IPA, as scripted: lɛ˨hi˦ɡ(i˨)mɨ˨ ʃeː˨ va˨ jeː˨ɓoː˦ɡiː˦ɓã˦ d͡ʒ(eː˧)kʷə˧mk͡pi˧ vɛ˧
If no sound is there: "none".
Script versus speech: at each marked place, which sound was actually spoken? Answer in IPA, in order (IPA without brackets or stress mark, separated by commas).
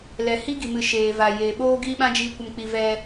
i˨, iː˧